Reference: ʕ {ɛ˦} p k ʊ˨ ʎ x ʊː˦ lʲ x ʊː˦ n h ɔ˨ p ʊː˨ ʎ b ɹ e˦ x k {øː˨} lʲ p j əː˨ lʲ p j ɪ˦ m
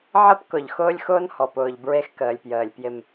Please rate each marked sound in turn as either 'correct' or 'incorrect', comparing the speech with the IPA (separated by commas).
incorrect, incorrect